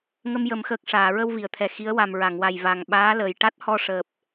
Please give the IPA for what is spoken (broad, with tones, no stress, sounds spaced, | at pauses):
ŋ ə˧ m j ə˨˩˦ m x əː˨˩ k̚ ʂ aː˨˩˨ ɹ ə˧ w v i˨˩˨ ə̯ t̪ʰ ɛ˨˩ x i˧˥ ə̯ w a˨˩ m ɹ a˨˩˨ ŋ w a˨˩ j v a˨˩ ŋ ɓ aː˧˥ l əː˨˩ j ʈ a˦˥ t̚ h ɔ˧ ʂ əː˨˩ p̚